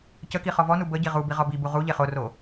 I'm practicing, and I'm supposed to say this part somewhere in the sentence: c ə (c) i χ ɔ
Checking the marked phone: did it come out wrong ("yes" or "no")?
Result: yes